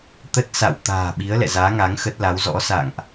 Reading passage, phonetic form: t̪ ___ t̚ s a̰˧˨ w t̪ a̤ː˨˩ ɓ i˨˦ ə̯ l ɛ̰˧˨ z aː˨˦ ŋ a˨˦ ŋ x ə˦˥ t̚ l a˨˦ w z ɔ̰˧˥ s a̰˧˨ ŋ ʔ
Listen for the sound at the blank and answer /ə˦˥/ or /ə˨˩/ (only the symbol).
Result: ə˦˥